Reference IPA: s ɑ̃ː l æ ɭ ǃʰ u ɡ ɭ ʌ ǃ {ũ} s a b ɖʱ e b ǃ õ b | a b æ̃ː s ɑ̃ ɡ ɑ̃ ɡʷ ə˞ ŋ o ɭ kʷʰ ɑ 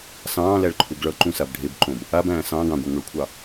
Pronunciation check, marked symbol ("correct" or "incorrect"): correct